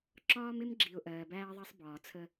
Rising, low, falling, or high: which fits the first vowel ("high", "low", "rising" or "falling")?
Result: high